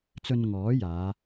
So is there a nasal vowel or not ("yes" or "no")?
no